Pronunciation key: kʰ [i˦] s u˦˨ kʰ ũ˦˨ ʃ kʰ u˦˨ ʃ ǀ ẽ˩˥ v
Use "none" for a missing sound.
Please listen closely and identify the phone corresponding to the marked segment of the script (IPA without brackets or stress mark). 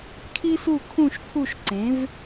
i˦